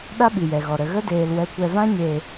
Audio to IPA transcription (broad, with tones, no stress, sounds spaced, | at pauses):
ɗ a˦ ɓ i˨ j ɛ˨ ɣ ɔ˨ ɾ ə˨ ɣ ə˦ d eː˨ l w ɛ˨ kʷ ɛ˨ v ã˧ ɲ e˨